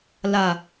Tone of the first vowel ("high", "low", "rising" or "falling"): low